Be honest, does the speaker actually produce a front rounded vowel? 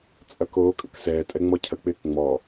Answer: no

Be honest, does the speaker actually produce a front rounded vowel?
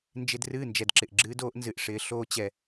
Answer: no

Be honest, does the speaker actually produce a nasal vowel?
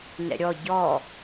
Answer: no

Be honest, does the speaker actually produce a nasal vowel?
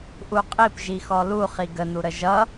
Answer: no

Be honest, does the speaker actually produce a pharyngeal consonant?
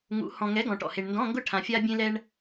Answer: no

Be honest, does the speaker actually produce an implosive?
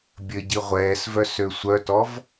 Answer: no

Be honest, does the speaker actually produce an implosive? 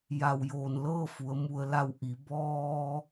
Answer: no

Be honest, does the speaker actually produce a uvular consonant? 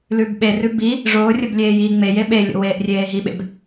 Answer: no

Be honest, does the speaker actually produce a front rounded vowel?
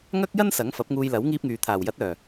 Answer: yes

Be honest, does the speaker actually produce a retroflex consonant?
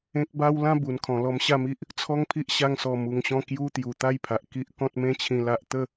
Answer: no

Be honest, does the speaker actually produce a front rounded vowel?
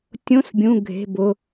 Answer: no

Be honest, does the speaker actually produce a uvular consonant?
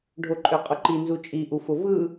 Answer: yes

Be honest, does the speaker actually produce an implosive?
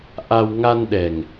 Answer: yes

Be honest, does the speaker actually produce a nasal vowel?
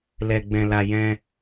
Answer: yes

